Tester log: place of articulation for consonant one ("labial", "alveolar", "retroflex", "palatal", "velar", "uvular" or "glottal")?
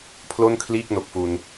labial